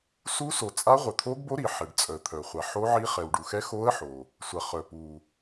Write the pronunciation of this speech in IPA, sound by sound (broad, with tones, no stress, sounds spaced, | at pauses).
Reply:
s u˧˥ s o˩ t͡sʼ a˧˥ ʁʷ œ˩ t̪ʰ o˧˥ ɡ b o˧˥ ɾ i˩ ħ ɛ˩ ɖ t͡sʼ œ˩ ə̯ t̪ʰ œ˩ χʷ a˩ ħ o˧˥ ʕ i˧˥ χ ɛ˩ w ɖ u˩ x ɛ˧˥ x o˧˥ ə̯ ħ o˩ | sʷ a˩ χ œ˩ p u˩